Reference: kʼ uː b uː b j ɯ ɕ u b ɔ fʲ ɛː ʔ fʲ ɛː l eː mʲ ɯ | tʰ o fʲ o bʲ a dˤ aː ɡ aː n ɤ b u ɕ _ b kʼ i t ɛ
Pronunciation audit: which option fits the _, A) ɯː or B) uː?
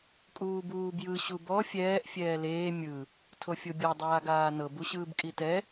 A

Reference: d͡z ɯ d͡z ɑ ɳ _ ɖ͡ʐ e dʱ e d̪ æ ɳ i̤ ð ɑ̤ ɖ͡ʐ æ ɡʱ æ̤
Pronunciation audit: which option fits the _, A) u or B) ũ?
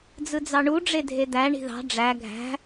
A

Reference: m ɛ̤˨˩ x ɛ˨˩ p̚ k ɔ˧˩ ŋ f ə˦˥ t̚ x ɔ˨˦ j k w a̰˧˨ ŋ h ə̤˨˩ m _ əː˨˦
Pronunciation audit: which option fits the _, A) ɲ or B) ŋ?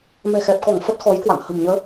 A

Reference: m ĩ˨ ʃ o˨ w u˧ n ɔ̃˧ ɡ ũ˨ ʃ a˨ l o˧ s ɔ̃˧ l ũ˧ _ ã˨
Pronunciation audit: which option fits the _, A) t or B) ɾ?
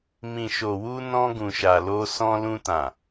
A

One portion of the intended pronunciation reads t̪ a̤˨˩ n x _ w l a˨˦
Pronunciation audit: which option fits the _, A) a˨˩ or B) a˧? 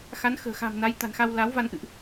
B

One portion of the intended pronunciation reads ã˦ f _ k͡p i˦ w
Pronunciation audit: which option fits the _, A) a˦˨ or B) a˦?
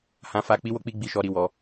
B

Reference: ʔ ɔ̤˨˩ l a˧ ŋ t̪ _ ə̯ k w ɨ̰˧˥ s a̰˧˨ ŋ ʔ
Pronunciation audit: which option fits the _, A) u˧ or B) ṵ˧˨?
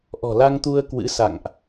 A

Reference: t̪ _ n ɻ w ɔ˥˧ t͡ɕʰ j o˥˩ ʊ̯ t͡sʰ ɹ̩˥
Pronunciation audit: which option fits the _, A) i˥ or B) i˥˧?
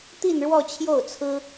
B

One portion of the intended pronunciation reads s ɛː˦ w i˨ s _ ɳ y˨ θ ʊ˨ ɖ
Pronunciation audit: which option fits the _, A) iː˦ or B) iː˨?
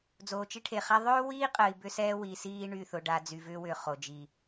A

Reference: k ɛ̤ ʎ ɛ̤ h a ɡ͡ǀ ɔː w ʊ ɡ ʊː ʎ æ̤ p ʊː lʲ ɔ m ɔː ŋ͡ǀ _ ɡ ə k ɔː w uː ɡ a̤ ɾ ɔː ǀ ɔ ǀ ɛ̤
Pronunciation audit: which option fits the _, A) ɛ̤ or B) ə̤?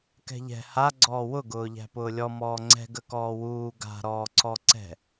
A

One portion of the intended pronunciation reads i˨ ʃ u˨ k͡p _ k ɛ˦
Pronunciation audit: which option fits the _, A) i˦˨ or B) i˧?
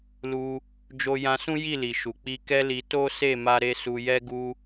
B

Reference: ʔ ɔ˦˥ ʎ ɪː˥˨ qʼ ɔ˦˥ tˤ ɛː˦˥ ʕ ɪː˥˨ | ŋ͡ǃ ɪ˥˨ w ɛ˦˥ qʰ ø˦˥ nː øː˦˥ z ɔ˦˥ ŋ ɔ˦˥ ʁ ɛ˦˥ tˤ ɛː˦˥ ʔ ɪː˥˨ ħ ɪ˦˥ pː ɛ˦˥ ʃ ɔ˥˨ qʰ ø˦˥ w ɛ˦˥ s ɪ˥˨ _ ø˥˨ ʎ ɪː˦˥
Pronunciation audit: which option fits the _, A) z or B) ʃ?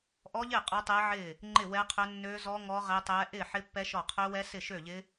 B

